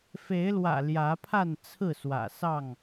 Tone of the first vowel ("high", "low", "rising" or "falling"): rising